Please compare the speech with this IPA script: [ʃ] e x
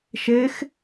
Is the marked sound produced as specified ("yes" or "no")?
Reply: yes